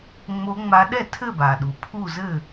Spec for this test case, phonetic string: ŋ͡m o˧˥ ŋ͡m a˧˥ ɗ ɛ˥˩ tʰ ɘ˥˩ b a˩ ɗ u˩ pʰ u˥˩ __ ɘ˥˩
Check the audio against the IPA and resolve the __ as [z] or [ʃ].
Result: z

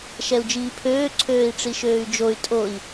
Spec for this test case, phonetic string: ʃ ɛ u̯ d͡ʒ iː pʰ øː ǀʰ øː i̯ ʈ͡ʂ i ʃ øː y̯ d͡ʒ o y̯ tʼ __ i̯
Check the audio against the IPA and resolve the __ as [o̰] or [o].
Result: o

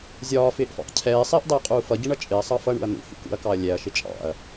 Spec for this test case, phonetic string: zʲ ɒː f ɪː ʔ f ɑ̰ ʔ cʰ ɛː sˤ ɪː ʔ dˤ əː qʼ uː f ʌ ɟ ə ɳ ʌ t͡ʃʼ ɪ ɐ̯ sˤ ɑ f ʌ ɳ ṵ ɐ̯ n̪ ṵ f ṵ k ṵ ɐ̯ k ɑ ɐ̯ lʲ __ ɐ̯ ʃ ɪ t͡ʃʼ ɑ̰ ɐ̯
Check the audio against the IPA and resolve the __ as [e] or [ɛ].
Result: ɛ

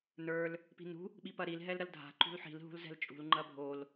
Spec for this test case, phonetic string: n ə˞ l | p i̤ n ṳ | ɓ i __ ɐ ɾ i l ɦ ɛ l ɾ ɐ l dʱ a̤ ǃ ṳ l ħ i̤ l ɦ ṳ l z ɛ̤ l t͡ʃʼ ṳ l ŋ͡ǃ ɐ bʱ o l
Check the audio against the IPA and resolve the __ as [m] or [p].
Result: p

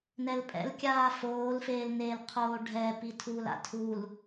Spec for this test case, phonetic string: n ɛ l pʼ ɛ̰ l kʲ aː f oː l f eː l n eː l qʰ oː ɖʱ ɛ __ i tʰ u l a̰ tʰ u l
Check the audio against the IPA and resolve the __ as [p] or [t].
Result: p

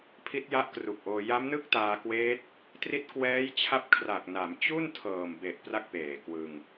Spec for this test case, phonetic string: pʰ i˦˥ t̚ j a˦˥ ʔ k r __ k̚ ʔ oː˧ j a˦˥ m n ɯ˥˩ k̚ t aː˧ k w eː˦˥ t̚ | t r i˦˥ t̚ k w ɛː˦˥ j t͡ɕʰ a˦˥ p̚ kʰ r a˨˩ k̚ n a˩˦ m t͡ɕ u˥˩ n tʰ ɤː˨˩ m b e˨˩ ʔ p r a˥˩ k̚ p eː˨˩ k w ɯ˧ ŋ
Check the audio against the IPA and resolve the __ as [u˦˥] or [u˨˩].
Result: u˨˩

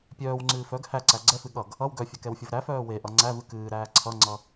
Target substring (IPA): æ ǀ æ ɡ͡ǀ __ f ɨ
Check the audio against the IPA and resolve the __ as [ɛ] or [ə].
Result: ɛ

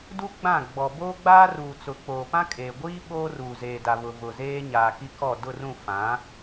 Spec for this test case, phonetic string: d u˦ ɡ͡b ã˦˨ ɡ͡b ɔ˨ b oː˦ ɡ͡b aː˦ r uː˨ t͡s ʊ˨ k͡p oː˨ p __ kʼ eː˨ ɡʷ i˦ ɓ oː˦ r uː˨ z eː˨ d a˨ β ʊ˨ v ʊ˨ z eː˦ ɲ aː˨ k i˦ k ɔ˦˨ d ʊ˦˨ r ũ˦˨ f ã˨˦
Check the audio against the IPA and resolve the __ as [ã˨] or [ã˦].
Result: ã˦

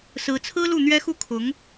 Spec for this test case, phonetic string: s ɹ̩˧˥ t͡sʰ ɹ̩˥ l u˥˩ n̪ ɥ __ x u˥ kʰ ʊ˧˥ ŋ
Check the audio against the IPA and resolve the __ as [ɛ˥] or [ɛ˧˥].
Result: ɛ˥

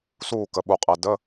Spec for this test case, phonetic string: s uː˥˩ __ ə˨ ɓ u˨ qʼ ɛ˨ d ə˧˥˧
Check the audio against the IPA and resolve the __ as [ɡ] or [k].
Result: k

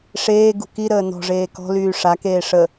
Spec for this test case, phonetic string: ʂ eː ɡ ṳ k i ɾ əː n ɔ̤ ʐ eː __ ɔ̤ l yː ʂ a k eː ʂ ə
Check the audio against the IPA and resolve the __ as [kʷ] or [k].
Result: k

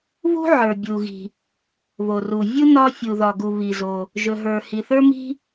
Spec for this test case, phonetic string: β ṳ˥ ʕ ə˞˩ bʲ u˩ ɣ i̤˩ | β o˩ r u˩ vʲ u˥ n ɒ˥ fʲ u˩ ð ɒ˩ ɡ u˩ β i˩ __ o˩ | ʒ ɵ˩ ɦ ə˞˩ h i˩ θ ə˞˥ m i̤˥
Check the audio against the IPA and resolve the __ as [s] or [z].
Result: z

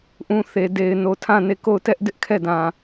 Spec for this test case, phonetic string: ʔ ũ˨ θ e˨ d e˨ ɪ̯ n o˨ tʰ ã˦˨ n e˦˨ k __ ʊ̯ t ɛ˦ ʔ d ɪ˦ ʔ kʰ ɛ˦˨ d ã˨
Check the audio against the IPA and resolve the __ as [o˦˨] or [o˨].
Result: o˦˨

